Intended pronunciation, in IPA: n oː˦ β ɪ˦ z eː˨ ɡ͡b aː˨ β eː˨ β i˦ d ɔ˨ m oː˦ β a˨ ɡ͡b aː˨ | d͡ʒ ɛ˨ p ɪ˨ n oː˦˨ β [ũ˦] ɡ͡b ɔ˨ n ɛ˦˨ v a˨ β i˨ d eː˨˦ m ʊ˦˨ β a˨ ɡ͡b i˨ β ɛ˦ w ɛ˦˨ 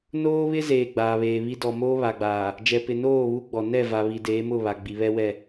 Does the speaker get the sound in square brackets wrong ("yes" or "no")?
yes